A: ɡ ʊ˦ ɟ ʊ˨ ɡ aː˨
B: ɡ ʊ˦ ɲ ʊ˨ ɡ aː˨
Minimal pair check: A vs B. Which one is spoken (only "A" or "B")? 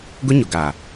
B